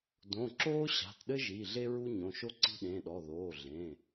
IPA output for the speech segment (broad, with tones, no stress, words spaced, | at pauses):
dõ˩˧˩ ǁoː˥ɕa̤˩˧˩tɗɘ˥ʒi˩˧˩ ɮe˥ɹu˥ ɲõ˩˧˩ʃo˥ǀi̤˥ ɗẽ˩˧˩ɗɔ˩˧˩ ðoː˩˧˩ɮẽ˩˧˩